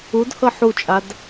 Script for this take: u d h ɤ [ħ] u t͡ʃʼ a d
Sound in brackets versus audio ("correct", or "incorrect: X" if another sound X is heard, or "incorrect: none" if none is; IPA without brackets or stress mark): correct